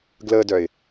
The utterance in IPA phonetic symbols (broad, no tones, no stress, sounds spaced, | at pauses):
ɡ l ə d œ ɪ̯